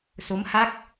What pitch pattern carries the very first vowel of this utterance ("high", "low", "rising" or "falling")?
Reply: rising